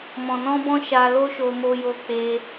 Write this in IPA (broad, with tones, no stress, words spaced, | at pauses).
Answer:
mɔ̃˨nɔ̃˧bɔ̃˧ ʃa˧ lo˦ʃo˧ mo˦jo˦k͡pe˦